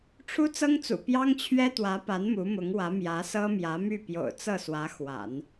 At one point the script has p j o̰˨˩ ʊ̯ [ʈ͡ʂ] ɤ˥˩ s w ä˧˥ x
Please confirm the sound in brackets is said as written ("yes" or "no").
no